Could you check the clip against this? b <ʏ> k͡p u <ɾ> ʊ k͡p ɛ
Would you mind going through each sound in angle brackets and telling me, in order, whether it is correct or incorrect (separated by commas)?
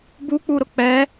incorrect, correct